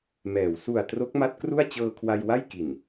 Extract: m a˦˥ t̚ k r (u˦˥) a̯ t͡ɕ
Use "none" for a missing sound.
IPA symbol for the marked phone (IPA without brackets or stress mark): u˥˩